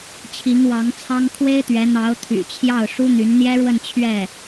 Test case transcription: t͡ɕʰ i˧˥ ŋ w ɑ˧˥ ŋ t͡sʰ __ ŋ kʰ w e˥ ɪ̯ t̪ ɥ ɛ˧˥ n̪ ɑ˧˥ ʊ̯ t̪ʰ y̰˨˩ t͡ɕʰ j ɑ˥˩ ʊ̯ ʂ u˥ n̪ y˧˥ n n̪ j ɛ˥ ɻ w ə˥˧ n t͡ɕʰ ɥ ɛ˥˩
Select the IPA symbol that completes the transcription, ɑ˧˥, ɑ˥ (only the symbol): ɑ˥